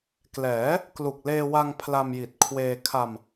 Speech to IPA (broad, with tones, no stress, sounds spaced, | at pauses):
k l ɛː˩˦ | k l u˨˩ k̚ l eː˧ w a˧ ŋ pʰ l a˧ m j i˨˩ t̚ kʰ w eː˧ kʰ a˧ m